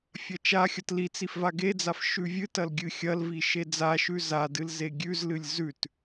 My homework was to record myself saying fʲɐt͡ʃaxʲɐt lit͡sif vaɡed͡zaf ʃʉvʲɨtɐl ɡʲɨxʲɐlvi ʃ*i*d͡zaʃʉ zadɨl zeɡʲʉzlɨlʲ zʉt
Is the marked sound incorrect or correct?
incorrect